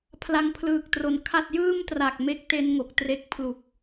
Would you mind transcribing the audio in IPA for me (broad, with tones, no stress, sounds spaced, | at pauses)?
pʰ l a˧ ŋ pʰ l ɯː˨˩ k̚ t r o˩˦ n kʰ a˥˩ t̚ j ɯː˥˩ m t r a˨˩ k̚ m e˥˩ k̚ t e˦˥ n ŋ o˨˩ k̚ t r e˦˥ k̚ pʰ l u˨˩ k̚